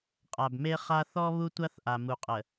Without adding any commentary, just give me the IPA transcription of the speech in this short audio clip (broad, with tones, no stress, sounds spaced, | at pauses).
qʼ a˨ b m e˦ χ a˦ θ ɔ˦ β u˦ tʷ a˦ θ ʔ a˨ m u˨ qʼ ə˨